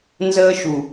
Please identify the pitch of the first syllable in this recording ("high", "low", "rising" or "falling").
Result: high